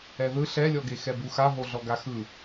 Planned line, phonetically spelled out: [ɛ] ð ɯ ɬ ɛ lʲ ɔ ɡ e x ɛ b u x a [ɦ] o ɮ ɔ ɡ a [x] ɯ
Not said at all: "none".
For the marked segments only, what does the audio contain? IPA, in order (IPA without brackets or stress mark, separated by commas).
ɛ, ɦ, x